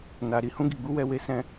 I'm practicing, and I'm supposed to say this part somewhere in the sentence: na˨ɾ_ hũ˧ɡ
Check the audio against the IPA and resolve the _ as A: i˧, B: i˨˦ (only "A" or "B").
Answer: A